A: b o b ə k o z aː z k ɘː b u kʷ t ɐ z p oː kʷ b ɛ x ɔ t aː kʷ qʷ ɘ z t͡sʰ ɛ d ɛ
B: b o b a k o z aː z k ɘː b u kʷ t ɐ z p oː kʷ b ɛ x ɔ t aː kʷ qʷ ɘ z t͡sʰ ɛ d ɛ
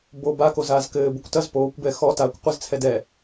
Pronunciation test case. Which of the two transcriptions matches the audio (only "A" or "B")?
B